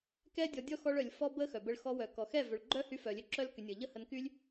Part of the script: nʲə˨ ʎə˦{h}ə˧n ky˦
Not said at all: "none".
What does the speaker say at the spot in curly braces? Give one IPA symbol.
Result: h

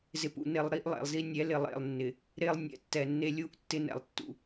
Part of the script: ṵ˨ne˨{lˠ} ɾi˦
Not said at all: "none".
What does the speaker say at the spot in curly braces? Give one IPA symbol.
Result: lˠ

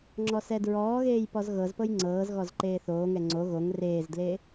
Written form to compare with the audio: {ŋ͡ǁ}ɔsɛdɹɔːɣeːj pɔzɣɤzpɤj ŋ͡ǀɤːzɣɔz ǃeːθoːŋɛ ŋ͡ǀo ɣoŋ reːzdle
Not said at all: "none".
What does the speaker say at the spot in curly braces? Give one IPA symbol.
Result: ŋ͡ǁ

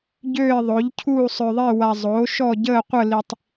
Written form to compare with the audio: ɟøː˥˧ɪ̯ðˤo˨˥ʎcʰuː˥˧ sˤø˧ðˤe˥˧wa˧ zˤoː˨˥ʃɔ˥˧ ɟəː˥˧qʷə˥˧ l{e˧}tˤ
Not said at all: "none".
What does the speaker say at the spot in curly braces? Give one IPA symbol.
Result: i˧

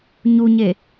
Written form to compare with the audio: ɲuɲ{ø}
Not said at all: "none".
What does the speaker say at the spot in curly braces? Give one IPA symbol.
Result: e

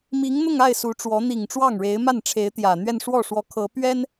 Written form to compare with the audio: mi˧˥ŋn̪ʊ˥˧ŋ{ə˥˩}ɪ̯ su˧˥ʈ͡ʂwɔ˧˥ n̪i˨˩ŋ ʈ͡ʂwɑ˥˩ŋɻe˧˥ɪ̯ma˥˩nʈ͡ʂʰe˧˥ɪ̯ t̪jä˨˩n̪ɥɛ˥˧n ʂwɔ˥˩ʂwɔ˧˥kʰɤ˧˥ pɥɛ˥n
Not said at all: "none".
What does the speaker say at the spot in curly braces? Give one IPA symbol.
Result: a˥˩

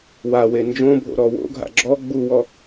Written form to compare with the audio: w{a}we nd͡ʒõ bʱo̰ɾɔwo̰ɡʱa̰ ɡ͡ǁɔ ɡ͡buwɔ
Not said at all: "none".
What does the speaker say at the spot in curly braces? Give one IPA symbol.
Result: a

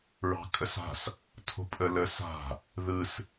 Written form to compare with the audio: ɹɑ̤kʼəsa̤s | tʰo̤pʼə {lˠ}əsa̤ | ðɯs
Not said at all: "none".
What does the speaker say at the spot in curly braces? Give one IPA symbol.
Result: l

